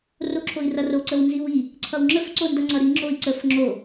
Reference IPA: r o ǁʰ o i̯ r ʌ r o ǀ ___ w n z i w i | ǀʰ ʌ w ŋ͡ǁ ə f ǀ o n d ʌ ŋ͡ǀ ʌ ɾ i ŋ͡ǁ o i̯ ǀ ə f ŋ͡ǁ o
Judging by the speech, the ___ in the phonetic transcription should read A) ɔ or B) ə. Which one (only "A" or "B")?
B